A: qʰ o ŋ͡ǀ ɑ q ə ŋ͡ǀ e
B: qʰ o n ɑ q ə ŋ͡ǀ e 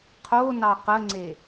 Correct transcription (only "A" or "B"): B